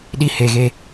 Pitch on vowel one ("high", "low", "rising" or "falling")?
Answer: high